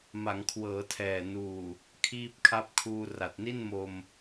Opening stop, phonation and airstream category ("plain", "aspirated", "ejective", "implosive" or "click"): aspirated